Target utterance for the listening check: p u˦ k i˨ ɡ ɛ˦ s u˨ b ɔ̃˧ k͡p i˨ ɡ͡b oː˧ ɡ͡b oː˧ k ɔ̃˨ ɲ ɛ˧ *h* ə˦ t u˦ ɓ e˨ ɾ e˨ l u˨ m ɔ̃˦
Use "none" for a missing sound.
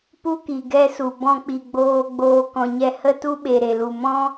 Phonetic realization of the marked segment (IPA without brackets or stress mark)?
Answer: h